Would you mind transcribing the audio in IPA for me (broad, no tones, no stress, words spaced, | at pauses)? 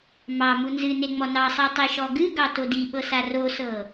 mɑmu nzɨ neŋ͡mɔnɑsˤi tˤiʃɔɡɨɡɑ todiɓɤ sarosɤ